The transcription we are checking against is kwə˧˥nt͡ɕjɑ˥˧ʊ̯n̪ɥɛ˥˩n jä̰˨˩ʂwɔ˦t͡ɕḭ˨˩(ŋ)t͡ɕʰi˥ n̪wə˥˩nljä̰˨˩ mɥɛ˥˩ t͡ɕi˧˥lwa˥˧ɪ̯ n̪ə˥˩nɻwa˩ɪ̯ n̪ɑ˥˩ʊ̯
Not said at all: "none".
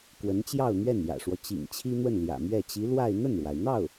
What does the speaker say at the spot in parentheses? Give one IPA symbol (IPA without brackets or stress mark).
ŋ